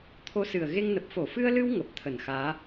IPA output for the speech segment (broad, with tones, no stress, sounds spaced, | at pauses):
t̪ʰ o˧ s ɨ˨˩ ə̯ ɣ e˧ ŋ n ə˨˩ p̚ f o˧˩ f ɨ˧ ə̯ l ɨ˧ w ŋ ə˨˩ p̚ t̪ʰ ə˧˩ n x aː˨˦